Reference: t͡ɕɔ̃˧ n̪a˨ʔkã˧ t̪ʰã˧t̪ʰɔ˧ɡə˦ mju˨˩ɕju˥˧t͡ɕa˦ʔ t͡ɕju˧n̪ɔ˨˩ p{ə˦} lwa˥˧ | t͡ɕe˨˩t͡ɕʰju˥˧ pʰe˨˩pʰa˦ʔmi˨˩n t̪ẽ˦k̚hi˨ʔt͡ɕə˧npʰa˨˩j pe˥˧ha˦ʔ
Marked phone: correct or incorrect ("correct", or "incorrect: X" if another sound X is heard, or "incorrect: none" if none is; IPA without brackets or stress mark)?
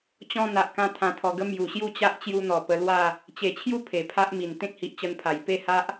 incorrect: ə˧